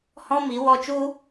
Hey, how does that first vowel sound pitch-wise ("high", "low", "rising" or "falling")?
high